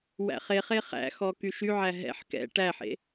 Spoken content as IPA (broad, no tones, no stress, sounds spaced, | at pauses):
w æ̰ χ e χ e χ æ̰ x ɔ k y ʃ y ʕ æ ɦ ɛ̰ ħ k ɛ̰ ʈ æ ħ ḛ